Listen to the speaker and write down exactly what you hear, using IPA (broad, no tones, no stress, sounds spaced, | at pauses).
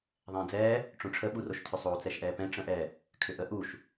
ðˤ ɛ̃ː d͡z ɛː | ʈ͡ʂ õ ʈ͡ʂʰ ə ɓ u r o ʃ tʰ ʏ sˤ oː t͡s ɛ ʃ ʔ ɛː p ɛ̃ ʈ͡ʂ ə̃ ʔ ɛ | kʰ ʏ ʔ ə ʔ u ʃ